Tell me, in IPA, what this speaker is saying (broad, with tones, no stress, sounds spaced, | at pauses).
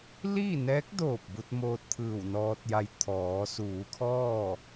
l iː˥˨ n ɛː˧˥ k̚ d oː˧˩ p̚ b u˧ t̚ m oː˧ t̚ t̪ʰ ɯː˧˩ w n ɔː˧ t̚ j a˧ j t̪ʰ ɔː˩˧ s uː˩˧ kʰ ɔː˥˨